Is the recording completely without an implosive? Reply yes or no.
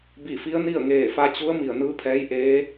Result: yes